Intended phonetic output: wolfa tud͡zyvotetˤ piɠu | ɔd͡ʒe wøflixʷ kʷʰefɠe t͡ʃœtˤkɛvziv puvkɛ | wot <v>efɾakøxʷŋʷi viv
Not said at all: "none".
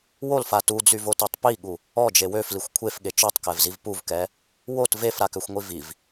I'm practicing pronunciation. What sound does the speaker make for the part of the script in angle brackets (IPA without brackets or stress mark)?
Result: v